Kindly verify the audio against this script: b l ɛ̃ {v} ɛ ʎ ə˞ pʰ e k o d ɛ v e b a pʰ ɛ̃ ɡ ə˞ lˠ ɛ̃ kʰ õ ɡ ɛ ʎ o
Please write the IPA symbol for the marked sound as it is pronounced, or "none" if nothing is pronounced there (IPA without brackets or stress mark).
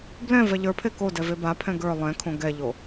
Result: v